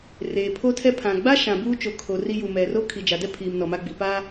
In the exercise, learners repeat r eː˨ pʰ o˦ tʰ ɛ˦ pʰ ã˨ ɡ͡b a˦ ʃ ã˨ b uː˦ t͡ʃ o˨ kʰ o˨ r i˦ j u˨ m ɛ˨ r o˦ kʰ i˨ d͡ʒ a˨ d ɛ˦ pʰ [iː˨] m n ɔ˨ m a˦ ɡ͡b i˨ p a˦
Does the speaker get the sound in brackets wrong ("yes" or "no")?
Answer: no